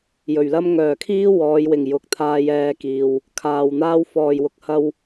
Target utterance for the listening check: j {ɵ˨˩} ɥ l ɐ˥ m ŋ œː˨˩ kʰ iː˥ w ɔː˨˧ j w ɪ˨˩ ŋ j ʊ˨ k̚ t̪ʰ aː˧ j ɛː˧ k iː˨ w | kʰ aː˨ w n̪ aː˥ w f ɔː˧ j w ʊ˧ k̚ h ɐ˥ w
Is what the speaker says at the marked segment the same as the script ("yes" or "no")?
yes